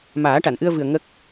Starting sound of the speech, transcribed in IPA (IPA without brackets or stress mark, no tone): m